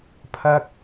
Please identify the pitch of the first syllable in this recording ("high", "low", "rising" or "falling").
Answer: high